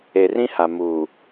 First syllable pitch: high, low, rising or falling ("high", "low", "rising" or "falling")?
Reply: low